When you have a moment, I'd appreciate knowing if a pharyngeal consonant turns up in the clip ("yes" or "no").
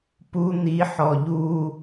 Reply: yes